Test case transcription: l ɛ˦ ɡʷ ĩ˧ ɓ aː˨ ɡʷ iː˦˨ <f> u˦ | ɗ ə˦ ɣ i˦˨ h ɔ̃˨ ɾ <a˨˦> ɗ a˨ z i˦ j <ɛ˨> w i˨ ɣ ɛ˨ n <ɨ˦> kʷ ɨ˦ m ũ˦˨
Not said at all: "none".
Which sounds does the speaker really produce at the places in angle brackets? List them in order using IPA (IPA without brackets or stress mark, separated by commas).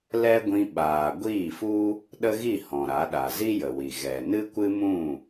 f, a˨˦, ə˨, ɨ˦